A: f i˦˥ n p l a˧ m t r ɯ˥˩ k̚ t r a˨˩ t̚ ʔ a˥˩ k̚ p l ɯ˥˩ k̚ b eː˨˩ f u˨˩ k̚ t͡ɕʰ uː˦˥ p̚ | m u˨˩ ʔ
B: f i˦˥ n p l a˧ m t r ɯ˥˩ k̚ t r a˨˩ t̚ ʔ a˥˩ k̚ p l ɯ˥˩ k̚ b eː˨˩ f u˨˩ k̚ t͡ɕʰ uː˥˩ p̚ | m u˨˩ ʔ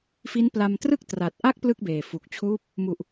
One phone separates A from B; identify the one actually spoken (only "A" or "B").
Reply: A